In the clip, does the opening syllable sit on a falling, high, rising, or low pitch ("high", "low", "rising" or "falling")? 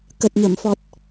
low